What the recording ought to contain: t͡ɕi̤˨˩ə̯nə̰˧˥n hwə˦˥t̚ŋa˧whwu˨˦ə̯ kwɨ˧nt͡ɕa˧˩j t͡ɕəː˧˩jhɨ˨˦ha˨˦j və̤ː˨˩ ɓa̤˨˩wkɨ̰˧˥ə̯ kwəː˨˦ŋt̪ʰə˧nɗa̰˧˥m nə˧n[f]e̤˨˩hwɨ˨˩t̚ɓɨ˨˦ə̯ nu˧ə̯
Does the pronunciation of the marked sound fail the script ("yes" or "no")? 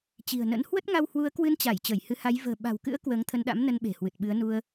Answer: yes